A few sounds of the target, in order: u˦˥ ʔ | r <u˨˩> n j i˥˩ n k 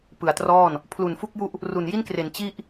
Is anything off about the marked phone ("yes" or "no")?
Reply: no